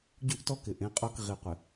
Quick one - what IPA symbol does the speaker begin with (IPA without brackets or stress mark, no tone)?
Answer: ɟ